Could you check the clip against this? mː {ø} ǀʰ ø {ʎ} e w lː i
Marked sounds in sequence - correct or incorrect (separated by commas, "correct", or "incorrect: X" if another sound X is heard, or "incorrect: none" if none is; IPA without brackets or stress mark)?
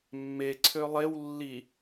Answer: incorrect: e, incorrect: lˠ